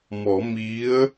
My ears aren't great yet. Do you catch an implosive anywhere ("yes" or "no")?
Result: no